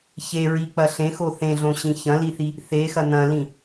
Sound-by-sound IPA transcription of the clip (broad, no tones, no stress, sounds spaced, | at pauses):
ç e ɹ i k͡p ɐ ɬ ẽ x o θ ẽ ɮ õ ɕ ĩ ç ɐ̃ l i θ i | θ e x ɐ n̪ ɐ̃ l ĩ